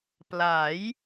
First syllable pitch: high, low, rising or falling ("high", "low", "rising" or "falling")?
rising